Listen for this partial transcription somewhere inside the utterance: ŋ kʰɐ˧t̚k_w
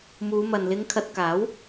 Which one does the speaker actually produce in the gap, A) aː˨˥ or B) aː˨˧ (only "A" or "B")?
A